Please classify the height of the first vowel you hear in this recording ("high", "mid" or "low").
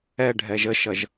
mid